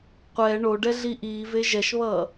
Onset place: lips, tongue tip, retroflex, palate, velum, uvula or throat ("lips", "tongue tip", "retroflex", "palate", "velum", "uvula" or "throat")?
uvula